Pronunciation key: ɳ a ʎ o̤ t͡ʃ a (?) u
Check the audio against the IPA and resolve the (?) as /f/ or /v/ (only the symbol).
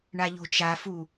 f